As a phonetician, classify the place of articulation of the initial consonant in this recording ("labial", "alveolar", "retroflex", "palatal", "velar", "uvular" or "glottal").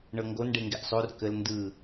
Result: retroflex